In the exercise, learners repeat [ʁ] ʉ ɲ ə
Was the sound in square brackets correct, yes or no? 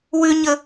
no